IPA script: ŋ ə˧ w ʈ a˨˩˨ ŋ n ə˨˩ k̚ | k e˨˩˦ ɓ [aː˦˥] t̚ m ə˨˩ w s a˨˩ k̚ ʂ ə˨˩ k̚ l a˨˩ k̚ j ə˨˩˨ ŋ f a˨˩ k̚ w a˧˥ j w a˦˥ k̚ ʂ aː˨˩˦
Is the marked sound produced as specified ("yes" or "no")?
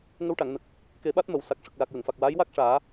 no